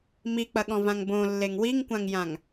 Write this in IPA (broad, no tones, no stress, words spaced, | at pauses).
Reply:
mik͡pɐɠɔ̃vãŋ bõlːeŋ wiŋkʷãŋjãŋ